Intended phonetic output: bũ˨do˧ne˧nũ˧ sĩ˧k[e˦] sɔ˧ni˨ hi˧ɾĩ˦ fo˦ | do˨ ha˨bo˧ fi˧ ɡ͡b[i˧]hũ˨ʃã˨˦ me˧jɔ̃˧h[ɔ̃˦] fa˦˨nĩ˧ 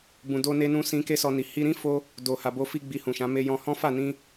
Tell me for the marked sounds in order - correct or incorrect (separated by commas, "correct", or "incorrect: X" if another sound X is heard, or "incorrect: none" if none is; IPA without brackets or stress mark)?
correct, correct, correct